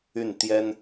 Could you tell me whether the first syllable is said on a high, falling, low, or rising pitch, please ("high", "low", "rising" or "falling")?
falling